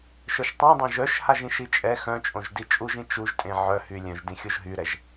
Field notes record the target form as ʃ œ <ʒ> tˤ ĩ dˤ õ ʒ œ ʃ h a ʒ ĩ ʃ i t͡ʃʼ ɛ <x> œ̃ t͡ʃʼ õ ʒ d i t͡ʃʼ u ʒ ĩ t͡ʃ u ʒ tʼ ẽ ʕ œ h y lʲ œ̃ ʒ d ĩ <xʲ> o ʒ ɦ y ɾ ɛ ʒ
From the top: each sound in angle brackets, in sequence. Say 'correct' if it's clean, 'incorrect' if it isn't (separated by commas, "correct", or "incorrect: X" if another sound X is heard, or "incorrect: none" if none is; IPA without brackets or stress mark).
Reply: incorrect: ʃ, correct, correct